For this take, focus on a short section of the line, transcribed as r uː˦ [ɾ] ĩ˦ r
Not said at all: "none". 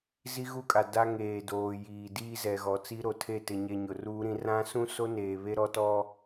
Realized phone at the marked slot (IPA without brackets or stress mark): ɾ